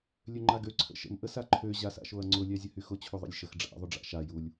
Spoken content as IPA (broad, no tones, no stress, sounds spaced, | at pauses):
lʲ ø ŋ͡ǃ a ɡ ø ǀʰ ə̰ ʃ ə̰ m ʔ ə s a ǃʰ ø ʑ a s a̰ ʃ o ɐ̯ ŋ͡ǀ ʊ lʲ æ zʲ ə h y x ʊ t͡ɕʰ u ðˤ ə̰ lʲ ʃ ə x ɖ͡ʐ a̰ ðˤ ʊ ɖ͡ʐ a̰ ʃ a j u lʲ